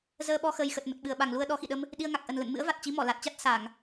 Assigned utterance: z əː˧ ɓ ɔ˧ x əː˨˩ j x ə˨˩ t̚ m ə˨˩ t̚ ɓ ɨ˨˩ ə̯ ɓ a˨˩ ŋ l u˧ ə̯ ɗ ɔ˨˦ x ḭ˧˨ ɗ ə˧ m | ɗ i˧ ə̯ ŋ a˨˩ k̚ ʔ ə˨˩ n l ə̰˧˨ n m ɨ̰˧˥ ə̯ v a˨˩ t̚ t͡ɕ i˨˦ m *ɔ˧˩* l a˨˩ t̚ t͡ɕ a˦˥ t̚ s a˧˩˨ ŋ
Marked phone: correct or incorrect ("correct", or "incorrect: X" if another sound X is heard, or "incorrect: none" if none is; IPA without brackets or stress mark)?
correct